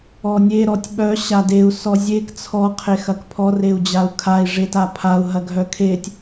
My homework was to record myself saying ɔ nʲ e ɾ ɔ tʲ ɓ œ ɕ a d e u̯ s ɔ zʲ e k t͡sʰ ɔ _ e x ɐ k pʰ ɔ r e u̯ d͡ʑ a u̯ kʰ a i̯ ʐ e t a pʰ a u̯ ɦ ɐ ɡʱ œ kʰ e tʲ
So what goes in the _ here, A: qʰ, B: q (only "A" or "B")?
A